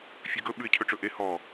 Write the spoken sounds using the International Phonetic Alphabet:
fʲ ʉ ɡ ɵ ɓ ʉ ɪ̯ cʰ ɵ ʈ͡ʂ ɵ ʔ e h ɔ

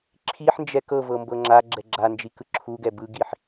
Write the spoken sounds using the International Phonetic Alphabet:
ǁʰ i ħ n d͡ʒ ɛ k ɤ v ɤ m b ɤ ŋ͡ǁ a ɡ͡ǁ ɛ ɡ͡ǁ a n d͡ʒ i k ɯ ǁʰ u ɡ ɛ b ɯ ɡ i ħ

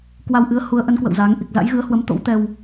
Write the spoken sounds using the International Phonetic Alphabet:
k w a˧ w ʔ ɨ˨˦ ə̯ h u˨˦ ə̯ ʔ ə˨˦ n k w ə̰˧˨ w z aː˨˦ ŋ ʔ i˨˩ k̚ z a̰˧˥ j ɣ ɨ˨˦ ə̯ h w ə˨˦ m t̪ o̰˧˥ w t̪ ɛ˧ w

